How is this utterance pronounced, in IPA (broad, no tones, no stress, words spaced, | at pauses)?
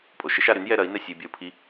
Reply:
pʼoʃɪʃ aɾyn jɛɾɐi̯nɛ sʲey̯bʲɐu̯pʰi